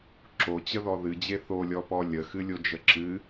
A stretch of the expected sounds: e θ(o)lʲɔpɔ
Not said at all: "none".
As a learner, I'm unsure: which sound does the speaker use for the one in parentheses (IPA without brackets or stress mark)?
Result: o